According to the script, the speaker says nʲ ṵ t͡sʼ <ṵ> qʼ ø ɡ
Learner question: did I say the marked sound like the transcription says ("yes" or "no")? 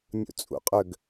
yes